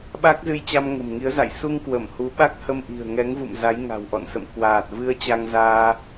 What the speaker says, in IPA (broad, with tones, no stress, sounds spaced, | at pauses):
ɓ a˦˥ k̚ z ɨ˧ j t͡ɕ a˧ m ŋ ə̤˨˩ m ŋ i˨˦ ə̯ z a̰˧˨ j s u˧ ŋ k w ə˧˩ m h u˨˦ ɓ a˦˥ k̚ h ə˧ m ʔ i̤˨˩ ə̯ ŋ ɛ˨˦ ŋ v ṵ˧˨ m z a˨˦ j ŋ a̤˨˩ w ʔ ɔ̰˧˨ n s ə̰˧˨ m k w aː˨˩ t̚ v ɨ˧ ə̯ t͡ɕ a˧ ŋ z aː˧